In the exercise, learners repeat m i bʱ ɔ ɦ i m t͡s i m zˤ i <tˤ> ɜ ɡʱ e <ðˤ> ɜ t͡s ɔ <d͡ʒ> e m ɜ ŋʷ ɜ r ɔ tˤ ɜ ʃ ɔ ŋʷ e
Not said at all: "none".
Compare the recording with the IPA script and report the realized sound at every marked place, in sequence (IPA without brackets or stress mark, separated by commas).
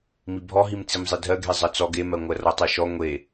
dʱ, zˤ, ɡ